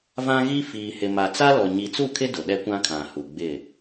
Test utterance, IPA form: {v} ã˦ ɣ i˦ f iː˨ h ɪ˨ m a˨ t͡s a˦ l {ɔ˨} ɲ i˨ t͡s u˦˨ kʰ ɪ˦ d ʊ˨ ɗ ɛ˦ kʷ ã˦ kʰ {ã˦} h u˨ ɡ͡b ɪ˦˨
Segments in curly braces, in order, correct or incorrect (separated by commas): correct, correct, incorrect